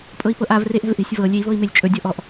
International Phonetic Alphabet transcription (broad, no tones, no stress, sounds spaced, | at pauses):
pʼ ɤ i̯ p ɤ ʔ a v r e ʔ ɛ̤ v ʔ e̤ sʲ v ɤ lʲ e i̯ v ɤ i̯ m e lʲ t͡ʃʼ ɵ dʲ ɔ ʔ ɔ ʔ